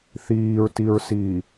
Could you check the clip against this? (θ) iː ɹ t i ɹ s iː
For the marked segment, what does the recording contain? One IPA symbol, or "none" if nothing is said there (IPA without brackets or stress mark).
θ